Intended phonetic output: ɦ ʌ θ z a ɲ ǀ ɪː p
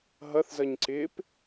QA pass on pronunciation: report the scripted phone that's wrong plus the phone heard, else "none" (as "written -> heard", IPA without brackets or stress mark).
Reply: a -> ʌ